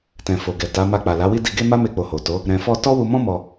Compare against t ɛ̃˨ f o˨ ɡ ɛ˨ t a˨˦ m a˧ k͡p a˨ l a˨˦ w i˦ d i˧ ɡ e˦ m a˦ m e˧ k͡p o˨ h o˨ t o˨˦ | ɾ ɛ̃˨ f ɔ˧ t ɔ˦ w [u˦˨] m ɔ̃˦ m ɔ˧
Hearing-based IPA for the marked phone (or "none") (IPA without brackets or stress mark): u˧